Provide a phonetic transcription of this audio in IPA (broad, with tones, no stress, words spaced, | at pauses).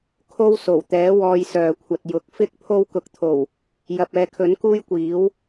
kʰo˥wso˨˩wt̪ɛː˨˥ wɔː˧jsœː˨kʷʰɐ˨t̚jʊ˨k̚ fɪ˥k̚ pʰo˧wkʊ˨k̚t̪ʰo˨˩w | jɐ˨p̚ɛː˨kʰɵ˨˥n kuː˥jkʷiː˨˥w